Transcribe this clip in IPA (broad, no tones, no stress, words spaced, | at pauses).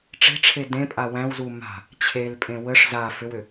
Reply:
ʈ͡ʂe̤ʈ͡ʂʰe dẽpʼa wæ̃wzu ma̤ | t͡ɕʰelpʼẽ wəʂ za fʏwʏ